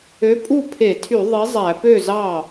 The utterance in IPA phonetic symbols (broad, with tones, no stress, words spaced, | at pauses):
ø˨˥pʼu˥˩ pʰe˧˩˧tʰy˧˩˧ ðˤi˨˥zˤæ˧˩˧pø˥˩zɑ˥˩